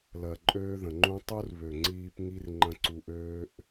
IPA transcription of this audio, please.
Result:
l ɜ˨ ǃʼ øː˦ ð ə̃˨ ŋ͡ǃ ũ˦ tˤ u˦ r β ø˨ ŋ͡ǀ iː˧ p ŋ i˦ r ŋ͡ǃ ə̃˧ ǀ u˧ ʔ øː˦ ʔ

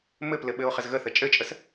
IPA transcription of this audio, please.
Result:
m ɘ p l ɘ ɓ ɘ o̯ χ ə z ɣ ə θ ə t͡ʃʼ ɘ t͡ʃʼ ə s

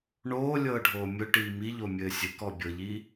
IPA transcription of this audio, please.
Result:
ɳ oː lʲ ɤː ɖʱ oː mʲ ʊ ʈ iː m i ʎ o mʲ ɘː sʲ ɘ k ɔ bʲ ɤ ʎ i

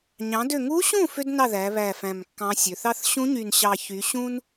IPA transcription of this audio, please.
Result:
ɲ ɑ̃˩˧ d ø˨˩ ŋ u˧˥ ɕ ũ˥˩ f ø˥ d n ɑ˥˩ ð æ˩˧ β æ˨˩ f æ̃˨˩ m kː ɑ̃˧˥ sʲ ø˩˧ θ ɑ˥ θ ɕ ũ˧˥ ɲ y˨˩ n ɕ ɑ˨˩ ç y˩˧ ɕ ũ˥ n

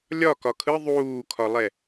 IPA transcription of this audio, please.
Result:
lʲ ɒ k ɒ kʰ ɯ ðˤ uː kʰ ɒ lˠ ɛ

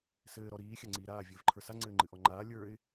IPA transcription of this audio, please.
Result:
s ɘː ɾ ɔ ɾ iː xʲ a ŋ͡ǀ iː ɾ aː vʲ ɘː v ǃʰ ə˞ s a ŋ͡ǀ ɘː ŋ͡ǃ ɨ ʔ ɔ ŋ͡ǃ aː lʲ ə˞ ɪ̯

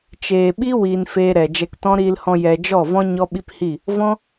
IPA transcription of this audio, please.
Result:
t͡ʃ eː˨ ɓ i˦ w i˧ n f eː˧ ɾ ɛ˨ d͡ʒ ɛ˧ k t ɔ̃˦ ɾ iː˧ l h ɔ̃˧ j ɛ˧ d͡ʒ ɔ˦˨ v ɔ̃˦ ɲ ɔ˦ ɓ i˦ p h i˦˨ | v ɔ̃˦

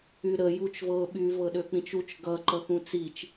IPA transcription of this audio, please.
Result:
y ɾ ə j u t͡ʃ v ɤ ɓ y v ɤ ɗ ø k͡p ĩ t͡ʃ u t͡ʃ ɡ ʌ ǃ ʌ x ũ t͡s i t͡ʃ

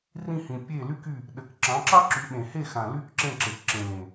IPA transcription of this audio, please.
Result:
r ĩ˦˨ h ĩ˨ pʲ e˦˨ l y˦ k y˦˨ | ɗ ɘ˨ k ǁ ɑ̃˨˦ ǁ ɑ˦ ǁ y˨˦ ɓ ẽ˨ h e˦˨ x ã˨ l y˦ k ǁ ẽ˦˨ ǁ e˨ k ǁ ẽ˨ l ẽ˨

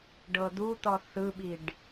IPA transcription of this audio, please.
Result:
ɖ ɤ d̪ u t̪ ɔ θ ɯ ɓ i ɖ

